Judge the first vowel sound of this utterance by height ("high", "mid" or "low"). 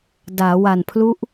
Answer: low